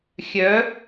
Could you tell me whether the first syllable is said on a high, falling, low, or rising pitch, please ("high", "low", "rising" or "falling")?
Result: rising